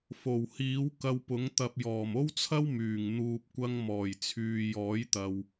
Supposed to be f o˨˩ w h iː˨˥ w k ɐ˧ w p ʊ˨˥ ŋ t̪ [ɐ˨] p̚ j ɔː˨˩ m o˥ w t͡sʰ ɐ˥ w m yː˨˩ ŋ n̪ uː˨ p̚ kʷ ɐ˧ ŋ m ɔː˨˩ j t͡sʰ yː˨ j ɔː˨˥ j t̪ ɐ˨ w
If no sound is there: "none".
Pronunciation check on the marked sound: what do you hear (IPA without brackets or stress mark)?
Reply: ɐ˨